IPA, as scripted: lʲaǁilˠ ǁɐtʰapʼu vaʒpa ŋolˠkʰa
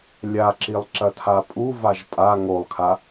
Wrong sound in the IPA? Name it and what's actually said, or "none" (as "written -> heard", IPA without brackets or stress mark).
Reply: p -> pʼ